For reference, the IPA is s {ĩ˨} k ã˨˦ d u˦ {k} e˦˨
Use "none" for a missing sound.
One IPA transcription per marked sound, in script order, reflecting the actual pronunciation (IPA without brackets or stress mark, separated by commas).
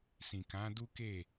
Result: ĩ˨, k